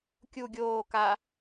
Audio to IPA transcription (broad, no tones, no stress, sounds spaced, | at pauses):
kʲ u ɡʲ oː k a